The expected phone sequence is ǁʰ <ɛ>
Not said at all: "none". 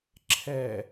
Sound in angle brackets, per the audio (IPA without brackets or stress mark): ɛ